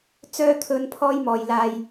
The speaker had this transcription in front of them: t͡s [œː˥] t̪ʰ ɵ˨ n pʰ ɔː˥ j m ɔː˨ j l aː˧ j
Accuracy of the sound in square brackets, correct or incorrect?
incorrect